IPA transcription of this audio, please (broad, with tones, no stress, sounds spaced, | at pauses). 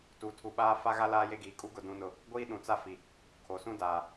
t u˨ tʰ u˨ ɓ aː˦ f a˦ ɣ a˦ l aː˦ j e˦ ɡ iː˨ kʼ u˦ ɡ ʊ˨ d ũ˨ n ʊ˨ | ɡʷ iː˦ ɗ ũ˨ t͡s a˦ f i˨ | kʰ o˨ s ũ˦ d aː˨